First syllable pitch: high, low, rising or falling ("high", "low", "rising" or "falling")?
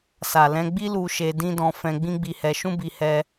low